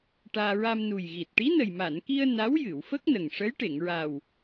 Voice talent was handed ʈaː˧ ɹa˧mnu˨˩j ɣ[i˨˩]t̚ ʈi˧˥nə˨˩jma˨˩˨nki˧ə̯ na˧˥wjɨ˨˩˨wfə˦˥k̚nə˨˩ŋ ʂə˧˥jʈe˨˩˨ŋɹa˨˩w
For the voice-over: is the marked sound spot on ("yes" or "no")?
yes